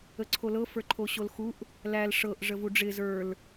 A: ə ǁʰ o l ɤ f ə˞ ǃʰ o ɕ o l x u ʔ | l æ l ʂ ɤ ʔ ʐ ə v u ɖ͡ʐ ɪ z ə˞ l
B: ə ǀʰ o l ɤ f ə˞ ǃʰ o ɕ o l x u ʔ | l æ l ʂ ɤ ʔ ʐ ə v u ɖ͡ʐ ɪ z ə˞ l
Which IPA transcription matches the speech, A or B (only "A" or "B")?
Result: B